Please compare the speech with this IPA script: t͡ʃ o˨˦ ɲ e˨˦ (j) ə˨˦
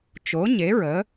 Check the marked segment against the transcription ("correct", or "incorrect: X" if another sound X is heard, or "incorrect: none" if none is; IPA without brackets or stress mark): incorrect: ɹ